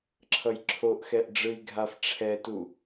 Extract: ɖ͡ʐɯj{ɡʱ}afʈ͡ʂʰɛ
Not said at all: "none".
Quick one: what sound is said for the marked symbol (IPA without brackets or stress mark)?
ɡʱ